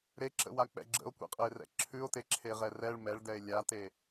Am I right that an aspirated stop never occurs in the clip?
no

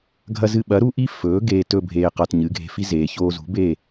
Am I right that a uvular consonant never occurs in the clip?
no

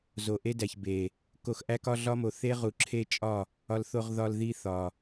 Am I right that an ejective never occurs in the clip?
no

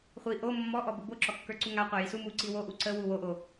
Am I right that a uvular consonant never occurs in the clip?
no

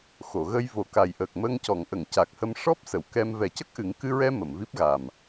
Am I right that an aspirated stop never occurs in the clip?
yes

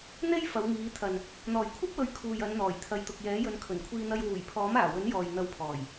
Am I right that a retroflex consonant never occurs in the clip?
yes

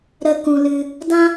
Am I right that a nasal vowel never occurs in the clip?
no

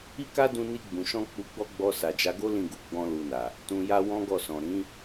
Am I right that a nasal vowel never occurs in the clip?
no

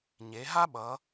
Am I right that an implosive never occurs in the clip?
no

